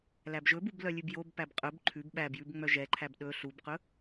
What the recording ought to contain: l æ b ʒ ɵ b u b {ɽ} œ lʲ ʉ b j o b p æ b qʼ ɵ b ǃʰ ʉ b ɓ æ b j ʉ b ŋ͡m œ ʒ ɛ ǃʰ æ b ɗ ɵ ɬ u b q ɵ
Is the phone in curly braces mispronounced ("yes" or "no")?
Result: yes